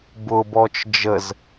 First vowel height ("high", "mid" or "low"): high